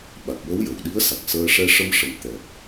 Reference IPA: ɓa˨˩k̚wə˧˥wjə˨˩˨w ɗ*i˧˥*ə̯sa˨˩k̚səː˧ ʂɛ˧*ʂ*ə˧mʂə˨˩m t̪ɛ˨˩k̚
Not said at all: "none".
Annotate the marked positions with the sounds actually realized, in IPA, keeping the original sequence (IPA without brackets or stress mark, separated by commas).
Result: i˧˥, ʂ